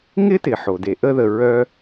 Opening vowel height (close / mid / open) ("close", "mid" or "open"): close